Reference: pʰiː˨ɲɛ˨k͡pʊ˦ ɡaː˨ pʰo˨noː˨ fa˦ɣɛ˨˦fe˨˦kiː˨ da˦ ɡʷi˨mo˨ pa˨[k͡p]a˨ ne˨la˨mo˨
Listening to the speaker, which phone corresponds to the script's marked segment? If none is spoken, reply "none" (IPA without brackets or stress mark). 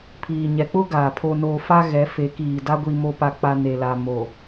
k͡p